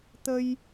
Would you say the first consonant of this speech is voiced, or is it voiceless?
voiceless